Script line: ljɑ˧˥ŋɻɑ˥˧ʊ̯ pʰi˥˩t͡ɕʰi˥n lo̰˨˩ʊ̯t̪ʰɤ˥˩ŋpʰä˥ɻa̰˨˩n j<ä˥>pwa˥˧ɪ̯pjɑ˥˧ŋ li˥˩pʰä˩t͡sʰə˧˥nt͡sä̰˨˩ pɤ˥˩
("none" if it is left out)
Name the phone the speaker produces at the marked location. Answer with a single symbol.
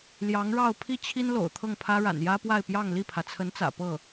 ä˥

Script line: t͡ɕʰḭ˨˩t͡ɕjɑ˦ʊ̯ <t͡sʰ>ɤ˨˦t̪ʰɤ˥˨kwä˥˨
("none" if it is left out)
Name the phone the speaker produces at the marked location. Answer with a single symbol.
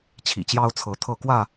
t͡sʰ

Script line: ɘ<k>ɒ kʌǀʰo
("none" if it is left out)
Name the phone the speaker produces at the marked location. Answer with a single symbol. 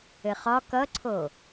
χ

